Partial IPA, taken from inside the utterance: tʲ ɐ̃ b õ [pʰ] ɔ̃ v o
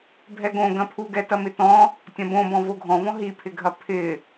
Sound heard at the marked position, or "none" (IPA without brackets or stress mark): b